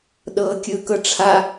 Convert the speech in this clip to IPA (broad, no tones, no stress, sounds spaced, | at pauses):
ɗ ɤː kʲ ɯ k ɤ ʈ͡ʂʰ a